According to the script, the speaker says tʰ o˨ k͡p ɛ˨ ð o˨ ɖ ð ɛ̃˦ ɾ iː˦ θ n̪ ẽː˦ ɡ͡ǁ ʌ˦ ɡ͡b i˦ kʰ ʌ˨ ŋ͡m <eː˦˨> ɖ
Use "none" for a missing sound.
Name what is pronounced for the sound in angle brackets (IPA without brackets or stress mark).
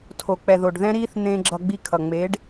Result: eː˨˦